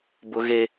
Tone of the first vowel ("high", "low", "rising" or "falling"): high